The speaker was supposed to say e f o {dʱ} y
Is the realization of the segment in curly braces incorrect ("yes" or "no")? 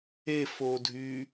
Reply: no